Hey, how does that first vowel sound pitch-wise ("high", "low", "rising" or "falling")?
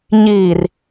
low